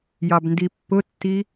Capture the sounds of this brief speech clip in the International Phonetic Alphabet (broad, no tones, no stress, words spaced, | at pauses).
jɑbndipːʊtːi